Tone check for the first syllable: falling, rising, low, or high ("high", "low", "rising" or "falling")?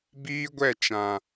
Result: high